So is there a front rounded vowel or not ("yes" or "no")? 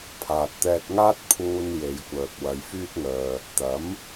yes